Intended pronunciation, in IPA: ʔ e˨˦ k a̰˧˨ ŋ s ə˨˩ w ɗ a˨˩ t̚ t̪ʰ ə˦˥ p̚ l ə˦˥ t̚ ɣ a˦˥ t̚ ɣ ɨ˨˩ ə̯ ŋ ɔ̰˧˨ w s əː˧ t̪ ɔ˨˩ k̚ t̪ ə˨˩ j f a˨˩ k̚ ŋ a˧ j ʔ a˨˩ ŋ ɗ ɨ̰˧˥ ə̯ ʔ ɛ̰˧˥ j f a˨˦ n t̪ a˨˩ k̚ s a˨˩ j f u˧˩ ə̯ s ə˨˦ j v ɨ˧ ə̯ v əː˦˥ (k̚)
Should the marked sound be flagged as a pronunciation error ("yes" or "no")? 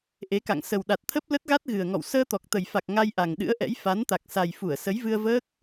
no